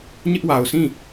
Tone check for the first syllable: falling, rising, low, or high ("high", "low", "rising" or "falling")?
high